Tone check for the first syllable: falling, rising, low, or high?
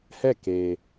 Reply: falling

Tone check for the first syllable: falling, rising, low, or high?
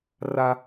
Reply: high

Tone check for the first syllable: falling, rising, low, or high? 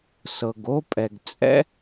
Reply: low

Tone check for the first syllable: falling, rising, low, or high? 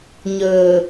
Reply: low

